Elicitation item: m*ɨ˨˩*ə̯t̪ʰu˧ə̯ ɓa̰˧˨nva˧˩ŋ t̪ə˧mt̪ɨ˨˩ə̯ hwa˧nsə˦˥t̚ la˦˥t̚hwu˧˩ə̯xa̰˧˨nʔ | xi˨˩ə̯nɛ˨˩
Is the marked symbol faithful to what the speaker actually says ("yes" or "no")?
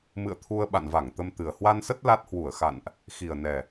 no